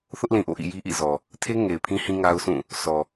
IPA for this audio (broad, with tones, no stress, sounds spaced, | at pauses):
θ ʊ˦ ʔ l ĩ˨ ʔ o̰˦˨ ʔ ḭ˦˨ j i˦ ʔ ḭ˦˨ z ɔ˨ | tʰ e˦ ŋ e˨ ɪ̯ pʰ ĩ˦ h ĩ˦ ŋ a˦ ʊ̯ s ũ˦˨ | s ɔ˨